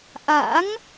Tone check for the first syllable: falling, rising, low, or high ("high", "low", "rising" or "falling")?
rising